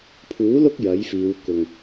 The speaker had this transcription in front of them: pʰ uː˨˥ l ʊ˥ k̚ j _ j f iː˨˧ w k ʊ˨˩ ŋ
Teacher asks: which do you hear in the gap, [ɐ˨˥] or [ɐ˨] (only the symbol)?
ɐ˨˥